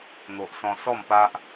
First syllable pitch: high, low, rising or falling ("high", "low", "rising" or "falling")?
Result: low